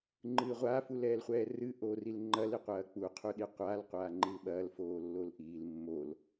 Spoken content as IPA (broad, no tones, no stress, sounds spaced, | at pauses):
ŋ͡ǃ ɨː ʁʷ a f u l ɛː l χʷ ɛː r ɨ ʔ oː r i l ŋ͡ǃ ɐ l i qʷ ɐː k͡p u qʰ u ɗ i qʷ aː l qʷ aː ŋ͡ǃ i l ɓ ɐː l f oː lː o l ʔ iː l mː o l